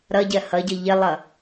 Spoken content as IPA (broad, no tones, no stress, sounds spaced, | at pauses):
ɾ ʌ ɟ ɜ h ʌ ɟ ɤ ʎ ɪ lˠ ʌ